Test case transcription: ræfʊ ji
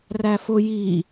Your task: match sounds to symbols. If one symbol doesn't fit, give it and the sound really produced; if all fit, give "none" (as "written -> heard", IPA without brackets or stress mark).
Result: none